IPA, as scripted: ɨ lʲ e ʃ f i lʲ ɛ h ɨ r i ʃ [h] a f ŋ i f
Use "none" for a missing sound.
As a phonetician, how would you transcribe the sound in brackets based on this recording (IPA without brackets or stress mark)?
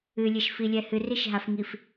ɦ